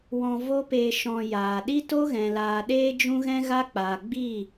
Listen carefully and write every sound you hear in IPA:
w ɔ̃˧ v o˦ p eː˧ ʃ ɔ̃˧ j aː˨ ɗ i˦ t o˦ ɣ ɛ̃˨ l aː˨ ɗ eː˦ d͡ʒ ũ˦ ɣ ɛ̃˦ ɣ a˦ k͡p aː˨ ɡ͡b i˦˨

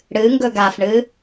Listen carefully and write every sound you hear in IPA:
ɽ ɨ ŋ ɡ ɵ ɡ a f ɳ ɨ

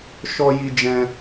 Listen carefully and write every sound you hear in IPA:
ʃ ɔ˧ j i˧ d͡ʒ ɛ̃˧

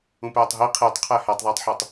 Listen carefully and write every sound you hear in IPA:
ũ p æː tˤ ɦ i qʰ iː tˤ qʰ æ h æ tˤ ðˤ eː tˤ ħ u tˤ

